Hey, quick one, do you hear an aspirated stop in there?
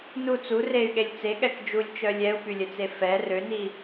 no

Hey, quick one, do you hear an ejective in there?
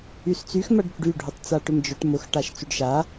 no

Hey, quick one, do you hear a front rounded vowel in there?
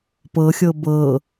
no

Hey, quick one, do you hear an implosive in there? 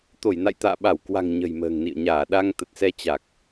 yes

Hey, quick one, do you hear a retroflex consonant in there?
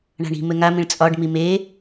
yes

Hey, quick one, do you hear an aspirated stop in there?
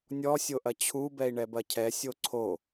yes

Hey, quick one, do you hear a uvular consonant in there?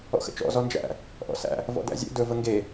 no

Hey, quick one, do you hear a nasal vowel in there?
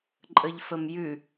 no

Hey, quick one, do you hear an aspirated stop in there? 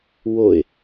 no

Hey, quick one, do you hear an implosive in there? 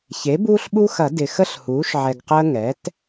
yes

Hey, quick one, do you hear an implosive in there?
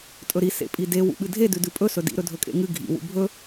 yes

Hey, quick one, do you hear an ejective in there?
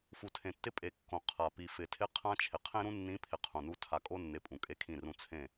yes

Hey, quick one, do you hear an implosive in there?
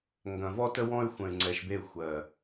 no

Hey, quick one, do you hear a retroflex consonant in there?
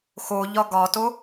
no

